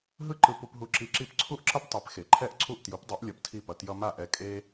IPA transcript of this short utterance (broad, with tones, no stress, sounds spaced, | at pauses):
ɦ ɯ˥ ǃ ɯ˧ p u˧ p ɦ u˧ ǁ i˧ ǁ i˥˩ p ǀʰ u˥ ʔ ǁ ʌ˥ p tˤ e˩˥ p x e˩ ǃʰ ɛ˥˩ ʔ ǀʰ u˥˩ ʔ t j u˩˥ p dˤ i˩˥ ʔ lʲ ʌ˧ p tʰ i˥˩ p ʌ˧ t j ʌ˧ m a˥˩ ʔ ɛ˧ kʼ e˥